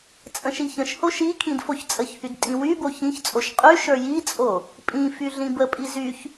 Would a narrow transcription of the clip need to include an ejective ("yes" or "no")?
yes